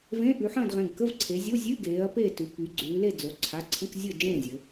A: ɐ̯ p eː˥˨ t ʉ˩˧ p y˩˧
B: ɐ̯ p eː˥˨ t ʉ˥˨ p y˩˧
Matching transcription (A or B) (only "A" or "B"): A